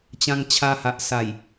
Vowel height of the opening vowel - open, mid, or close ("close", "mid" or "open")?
open